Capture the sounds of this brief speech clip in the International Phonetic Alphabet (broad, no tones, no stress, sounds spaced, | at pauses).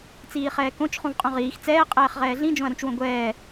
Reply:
t͡s iː χ ɛː k õ t͡ʃ χ ũ v qʼ ũ ʁ iː x t͡s ɛː qʼ ɛː χ ʁ ɛː ɮ ĩ d͡ʒ õ ɐ̯ ɾ ũ t͡ʃ w õ ɡʷ ɛː